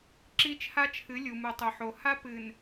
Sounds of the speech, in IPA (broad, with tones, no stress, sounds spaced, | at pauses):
ǁ i˦ t͡ʃʰ a˦ t͡ʃʰ ɨ˨˦ lʲ u˨ m u˨ tˤ o˨ ħ o˨ h a˦ p ɨ˨ n